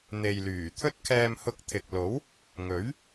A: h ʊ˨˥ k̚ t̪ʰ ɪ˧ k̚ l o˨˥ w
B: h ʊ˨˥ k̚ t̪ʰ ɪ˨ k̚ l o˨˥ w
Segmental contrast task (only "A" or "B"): B